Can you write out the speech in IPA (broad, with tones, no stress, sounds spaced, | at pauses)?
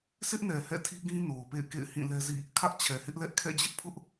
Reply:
sʰ ɪ˦ ʔ n ɛ˨ h ɛ̰˦˨ tʰ i˦ ɡ ĩ˦ n o˨ ʊ̯ p ḛ˦˨ ɪ̯ k ḛ˦˨ ɪ̯ h ĩ˦˨ l ɛ˦ z ḭ˦˨ | kʰ ä˦ ʔ t͡ɕʰ ɛ˨ h ɪ˦ ʔ l ɛ˦ ʔ kʰ ɛ̰˦˨ d͡ʑ ɪ˦ ʔ pʰ ʊ˦ ʔ